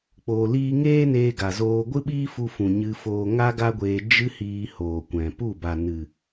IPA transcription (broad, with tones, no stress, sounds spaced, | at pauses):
k͡p oː˧ l iː˦ ŋ eː˦ n eː˧ ɡ a˨ z oː˧ ɡʷ ɨ˦ ɓ iː˦ f u˧ f ũ˨ ɲ ɨ˧ f oː˧ ŋ a˦ ɡ a˦ ɡʷ eː˧ d͡ʒ ɨ˦ h iː˧ h oː˨ kʷ ɛ̃˨ p u˦˨ b a˨ n ɨ˨